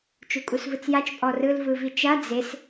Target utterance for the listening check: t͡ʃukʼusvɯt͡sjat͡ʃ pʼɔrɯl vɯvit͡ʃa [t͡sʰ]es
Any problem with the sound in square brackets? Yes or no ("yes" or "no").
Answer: yes